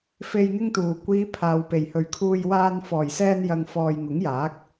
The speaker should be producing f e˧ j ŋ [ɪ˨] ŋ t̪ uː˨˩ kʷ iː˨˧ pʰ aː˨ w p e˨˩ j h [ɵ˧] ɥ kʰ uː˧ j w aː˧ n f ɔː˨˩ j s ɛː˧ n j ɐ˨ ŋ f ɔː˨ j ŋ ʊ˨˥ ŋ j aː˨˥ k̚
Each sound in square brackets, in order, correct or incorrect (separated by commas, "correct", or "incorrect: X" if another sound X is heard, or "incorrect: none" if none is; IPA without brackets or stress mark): incorrect: ɪ˥, incorrect: ɵ˨